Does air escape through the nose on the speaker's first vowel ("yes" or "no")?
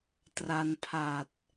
no